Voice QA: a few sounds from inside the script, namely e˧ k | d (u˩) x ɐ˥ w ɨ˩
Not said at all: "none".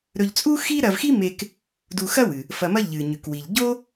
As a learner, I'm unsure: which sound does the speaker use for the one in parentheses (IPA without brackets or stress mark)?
u˧